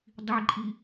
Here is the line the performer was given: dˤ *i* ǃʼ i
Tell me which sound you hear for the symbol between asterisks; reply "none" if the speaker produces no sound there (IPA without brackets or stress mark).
i